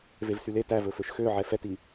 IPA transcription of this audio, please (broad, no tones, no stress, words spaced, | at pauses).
vevsyle tævɵføʃ xø ʕɛfɛti